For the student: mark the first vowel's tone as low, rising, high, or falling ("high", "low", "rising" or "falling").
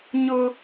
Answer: high